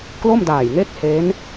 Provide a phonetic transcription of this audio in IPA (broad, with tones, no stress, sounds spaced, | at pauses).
k l o˥˩ m d aː˨˩ j ŋ e˥˩ k̚ h e˦˥ n